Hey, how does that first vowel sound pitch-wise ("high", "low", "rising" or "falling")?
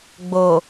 low